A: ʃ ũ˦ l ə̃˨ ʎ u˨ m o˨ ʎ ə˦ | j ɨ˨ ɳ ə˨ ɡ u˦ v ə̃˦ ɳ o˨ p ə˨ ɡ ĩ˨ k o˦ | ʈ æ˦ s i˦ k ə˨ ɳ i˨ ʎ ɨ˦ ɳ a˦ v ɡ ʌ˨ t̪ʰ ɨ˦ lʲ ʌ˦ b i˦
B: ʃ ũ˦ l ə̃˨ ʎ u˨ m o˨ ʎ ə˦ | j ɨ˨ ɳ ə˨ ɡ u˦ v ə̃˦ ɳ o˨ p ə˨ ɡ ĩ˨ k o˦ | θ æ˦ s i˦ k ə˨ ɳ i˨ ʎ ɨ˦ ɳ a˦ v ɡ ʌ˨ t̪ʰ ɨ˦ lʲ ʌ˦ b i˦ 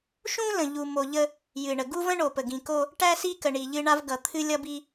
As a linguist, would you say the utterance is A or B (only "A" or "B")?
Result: A